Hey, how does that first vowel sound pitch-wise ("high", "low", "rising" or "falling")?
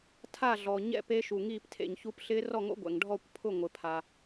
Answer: falling